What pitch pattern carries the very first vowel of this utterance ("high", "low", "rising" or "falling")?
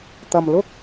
low